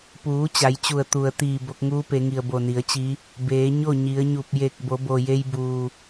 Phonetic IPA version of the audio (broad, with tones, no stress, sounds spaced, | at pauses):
p uː˩˧ t͡ɕ a˩˧ j t͡ɕ u˧˩ ə̯ t̪ u˩ ə̯ t̪ iː˧˩ b o˧ k̚ ŋ uː˧˥ p e˩˧ ŋ i˩ ə̯ b o˧˩ n i˩˧ ə̯ t͡ɕ i˧˥ | b eː˩˧ ɲ o˥˨ ɲ i˩˧ ə̯ ɲ u˧˩ p̚ j e˧˩ k̚ b o˩˧ b o˩ j e˧ j b uː˩